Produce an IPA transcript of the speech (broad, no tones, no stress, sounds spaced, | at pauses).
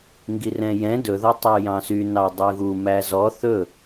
ŋ ɡ i r ɛ̃ j ɛ̃ d ɵ ð ɔ tˤ y j ɑ̃ s y n ɑ dˤ ʉ ɣ u m æ z ɔ θ ɵ